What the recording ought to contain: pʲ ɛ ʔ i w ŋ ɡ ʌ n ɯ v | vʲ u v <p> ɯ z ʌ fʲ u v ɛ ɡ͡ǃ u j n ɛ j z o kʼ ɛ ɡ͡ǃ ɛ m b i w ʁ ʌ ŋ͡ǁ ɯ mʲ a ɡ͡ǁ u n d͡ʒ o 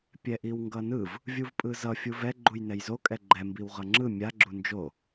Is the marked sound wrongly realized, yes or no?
yes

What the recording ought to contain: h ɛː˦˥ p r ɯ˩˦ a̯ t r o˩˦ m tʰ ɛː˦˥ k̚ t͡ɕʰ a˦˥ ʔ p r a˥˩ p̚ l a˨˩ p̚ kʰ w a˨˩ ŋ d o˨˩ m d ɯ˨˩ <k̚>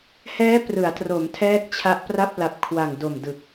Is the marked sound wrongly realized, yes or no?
no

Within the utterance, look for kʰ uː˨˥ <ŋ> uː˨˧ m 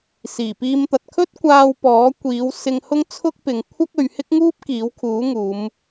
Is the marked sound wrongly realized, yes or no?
no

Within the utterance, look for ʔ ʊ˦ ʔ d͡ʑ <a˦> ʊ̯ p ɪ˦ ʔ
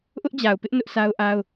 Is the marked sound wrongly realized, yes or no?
yes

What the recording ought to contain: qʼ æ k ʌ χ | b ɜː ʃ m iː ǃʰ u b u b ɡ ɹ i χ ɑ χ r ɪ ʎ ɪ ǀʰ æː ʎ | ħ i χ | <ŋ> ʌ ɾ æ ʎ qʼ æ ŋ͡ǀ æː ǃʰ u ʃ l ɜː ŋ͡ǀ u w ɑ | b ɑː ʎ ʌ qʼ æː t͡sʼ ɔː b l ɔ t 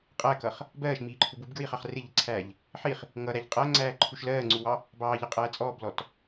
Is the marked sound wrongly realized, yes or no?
no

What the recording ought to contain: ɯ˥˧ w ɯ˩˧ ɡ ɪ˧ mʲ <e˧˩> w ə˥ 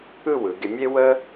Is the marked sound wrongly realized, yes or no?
yes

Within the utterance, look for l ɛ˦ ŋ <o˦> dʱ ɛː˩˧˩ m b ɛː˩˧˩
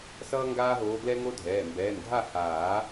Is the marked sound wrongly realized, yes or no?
no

